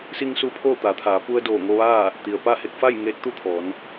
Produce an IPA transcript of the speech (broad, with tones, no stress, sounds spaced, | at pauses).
s i˧ ŋ s u˧ pʰ oː˥˨ t̪ a˩˧ t̪ʰ aː˩˧ p u˧ ə̯ d oː˧˩ ŋ o˧ ʋ aː˥˨ | t̪ i˩ ə̯ p a˥˨ h e˧ k̚ f a˥˨ j ŋ eː˧˥ t̚ t̪ u˥˨ t̪ʰ ɔː˩˧ n